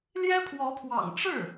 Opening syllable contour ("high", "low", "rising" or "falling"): high